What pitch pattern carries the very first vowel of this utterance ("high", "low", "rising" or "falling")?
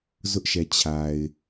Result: high